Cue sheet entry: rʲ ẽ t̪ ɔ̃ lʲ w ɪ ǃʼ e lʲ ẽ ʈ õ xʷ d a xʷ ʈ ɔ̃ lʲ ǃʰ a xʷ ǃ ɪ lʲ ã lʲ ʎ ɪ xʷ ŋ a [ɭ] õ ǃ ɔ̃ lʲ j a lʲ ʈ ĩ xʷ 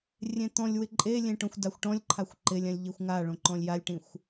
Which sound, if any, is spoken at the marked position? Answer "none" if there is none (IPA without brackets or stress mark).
ɭ